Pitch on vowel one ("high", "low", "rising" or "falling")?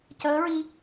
rising